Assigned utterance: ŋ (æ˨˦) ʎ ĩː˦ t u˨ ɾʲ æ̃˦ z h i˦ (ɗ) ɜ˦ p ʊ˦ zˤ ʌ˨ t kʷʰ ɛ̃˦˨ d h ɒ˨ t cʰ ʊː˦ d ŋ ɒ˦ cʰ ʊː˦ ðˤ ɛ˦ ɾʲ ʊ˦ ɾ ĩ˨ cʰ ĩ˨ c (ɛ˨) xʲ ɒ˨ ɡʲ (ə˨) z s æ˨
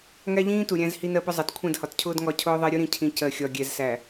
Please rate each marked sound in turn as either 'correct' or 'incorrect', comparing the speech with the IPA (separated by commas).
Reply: incorrect, incorrect, incorrect, incorrect